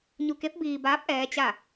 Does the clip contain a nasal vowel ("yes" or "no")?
no